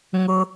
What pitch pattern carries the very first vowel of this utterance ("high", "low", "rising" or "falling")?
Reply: high